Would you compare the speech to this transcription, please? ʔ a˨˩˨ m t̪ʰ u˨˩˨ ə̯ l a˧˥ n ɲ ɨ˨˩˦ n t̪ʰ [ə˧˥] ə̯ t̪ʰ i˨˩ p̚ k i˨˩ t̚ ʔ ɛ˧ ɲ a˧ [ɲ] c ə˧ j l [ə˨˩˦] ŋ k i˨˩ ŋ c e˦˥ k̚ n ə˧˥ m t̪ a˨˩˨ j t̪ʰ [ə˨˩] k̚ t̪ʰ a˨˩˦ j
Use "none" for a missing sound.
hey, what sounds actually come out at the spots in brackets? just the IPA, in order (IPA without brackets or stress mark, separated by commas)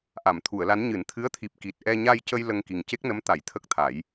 ɨ˧˥, j, ə˧, ə˦˥